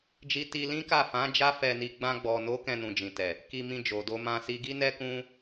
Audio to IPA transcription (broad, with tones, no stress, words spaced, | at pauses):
d͡ʒi˧ti˧lĩ˦ka˦˨ fã˨˦ d͡ʒa˦fɛ˧ni˧ ɡ͡bã˧ɡ͡bɔ˨no˨˦ kɛ̃˧nũ˨d͡ʒĩ˨ tɛ˨ | ki˧mĩ˧d͡ʒo˨ do˧mã˧si˧ ɡi˦nɛ˦kũ˦